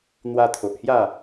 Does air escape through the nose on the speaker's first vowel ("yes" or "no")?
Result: no